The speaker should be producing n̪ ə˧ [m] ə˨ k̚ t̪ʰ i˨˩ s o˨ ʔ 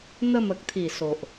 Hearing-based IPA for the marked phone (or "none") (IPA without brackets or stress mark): m